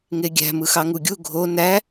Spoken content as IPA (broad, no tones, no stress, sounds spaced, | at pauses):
ŋ e ɡʲ æ̤ m ɯ x ɑ ŋ u ɡʲ u ɡʱ o n æ